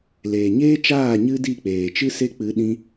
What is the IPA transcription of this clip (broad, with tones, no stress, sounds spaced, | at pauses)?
l eː˨ ɲ eː˦ t͡ʃ aː˦˨ ɲ ɨ˦ d i˦˨ k͡p eː˨ t͡ʃ ɨ˦ s e˦ k͡p ɨ˨˦ ɗ ĩ˦